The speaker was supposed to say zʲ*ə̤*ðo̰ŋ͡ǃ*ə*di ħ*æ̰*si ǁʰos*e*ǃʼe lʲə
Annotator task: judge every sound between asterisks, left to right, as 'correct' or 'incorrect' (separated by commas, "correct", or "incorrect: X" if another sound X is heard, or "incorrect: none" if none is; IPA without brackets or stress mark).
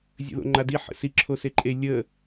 incorrect: ə̰, incorrect: a, incorrect: ə̰, correct